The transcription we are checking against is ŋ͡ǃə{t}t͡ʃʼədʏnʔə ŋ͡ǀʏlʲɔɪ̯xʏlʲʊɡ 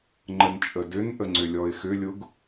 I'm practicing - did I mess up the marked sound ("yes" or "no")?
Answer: yes